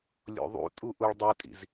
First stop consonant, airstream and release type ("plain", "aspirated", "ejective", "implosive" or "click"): ejective